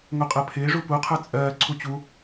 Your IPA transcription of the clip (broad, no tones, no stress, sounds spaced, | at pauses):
ŋ o qʼ ɜ pʰ ɪː ʐ u p u qʰ ə˞ t͡sʼ ɜː ǀʰ u t͡ɕ u